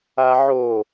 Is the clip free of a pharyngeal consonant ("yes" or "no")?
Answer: no